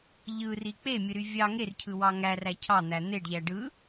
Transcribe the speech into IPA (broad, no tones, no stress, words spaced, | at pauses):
ʎɯri k͡pemʲɯɾy vʲɑ ŋercʰɯwɑ ŋæræ cʰɑn̪æ n̪eɖʎæ ɖɯ